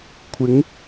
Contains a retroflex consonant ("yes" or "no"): no